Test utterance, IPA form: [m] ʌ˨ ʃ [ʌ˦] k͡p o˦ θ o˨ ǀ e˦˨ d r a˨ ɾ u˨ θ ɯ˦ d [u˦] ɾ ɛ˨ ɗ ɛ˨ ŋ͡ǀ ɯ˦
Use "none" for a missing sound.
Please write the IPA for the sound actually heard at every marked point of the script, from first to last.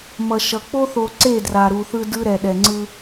m, ʌ˨, ɯ˦

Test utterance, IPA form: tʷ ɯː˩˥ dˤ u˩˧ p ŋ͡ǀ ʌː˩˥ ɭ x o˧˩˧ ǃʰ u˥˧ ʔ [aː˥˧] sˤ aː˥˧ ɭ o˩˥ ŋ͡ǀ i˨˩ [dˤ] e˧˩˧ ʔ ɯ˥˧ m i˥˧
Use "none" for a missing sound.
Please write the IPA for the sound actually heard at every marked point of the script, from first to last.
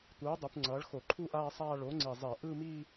aː˥˧, zˤ

